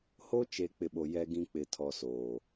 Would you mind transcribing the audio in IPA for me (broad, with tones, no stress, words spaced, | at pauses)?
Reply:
ho˦t͡ʃe˨ k͡pɪ˨ɓo˨ jɛ˦ɡĩ˦ k͡pɪ˨tʰɔ˨ soː˨